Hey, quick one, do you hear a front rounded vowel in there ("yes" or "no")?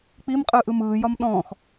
no